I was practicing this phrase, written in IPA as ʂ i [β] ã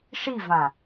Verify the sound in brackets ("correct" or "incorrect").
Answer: incorrect